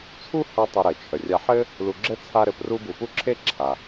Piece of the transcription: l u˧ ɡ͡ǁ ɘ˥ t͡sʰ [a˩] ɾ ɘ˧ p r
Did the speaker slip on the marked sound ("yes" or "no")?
yes